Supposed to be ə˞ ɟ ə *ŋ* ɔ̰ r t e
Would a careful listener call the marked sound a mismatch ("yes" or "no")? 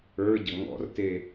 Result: no